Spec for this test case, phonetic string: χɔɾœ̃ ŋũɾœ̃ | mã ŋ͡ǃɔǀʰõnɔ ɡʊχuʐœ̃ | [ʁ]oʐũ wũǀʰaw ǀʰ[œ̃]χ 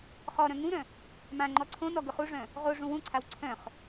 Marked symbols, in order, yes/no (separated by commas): yes, yes